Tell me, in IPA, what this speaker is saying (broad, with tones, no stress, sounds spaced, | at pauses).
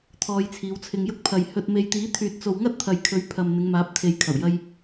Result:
t̪ʰ ɔː˧ j t͡sʰ iː˨˧ w t͡sʰ ɪ˧ ŋ j ʊ˧ k̚ pʰ ɐ˨ j h ɵ˨ t̚ m e˨ j t̪ iː˨˥ t̪ʰ yː˨ t̚ t͡s o˨ w ŋ ɐ˥ t̚ t̪ʰ ɐ˨ j kʰ ɵ˨˥ ɥ pʰ ɐ˨ m n̪ ɪ˨˧ ŋ m aː˨˥ p̚ t̪ʰ e˨ j kʰ ɐ˨˩ w j ɐ˧ j